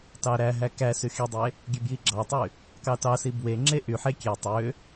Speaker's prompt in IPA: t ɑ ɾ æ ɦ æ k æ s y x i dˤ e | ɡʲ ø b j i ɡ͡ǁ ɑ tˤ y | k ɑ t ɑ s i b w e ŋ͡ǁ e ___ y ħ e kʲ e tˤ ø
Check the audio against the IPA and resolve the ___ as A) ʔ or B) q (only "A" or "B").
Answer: A